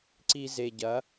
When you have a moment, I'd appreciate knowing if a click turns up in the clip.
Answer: yes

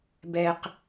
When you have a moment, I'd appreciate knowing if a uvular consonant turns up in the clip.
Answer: yes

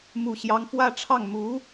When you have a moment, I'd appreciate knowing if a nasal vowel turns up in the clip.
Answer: no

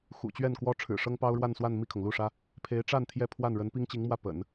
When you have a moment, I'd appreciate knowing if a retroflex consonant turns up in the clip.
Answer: yes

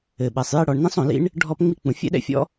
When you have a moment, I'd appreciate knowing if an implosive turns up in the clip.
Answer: yes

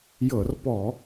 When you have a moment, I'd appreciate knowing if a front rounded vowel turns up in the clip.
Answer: no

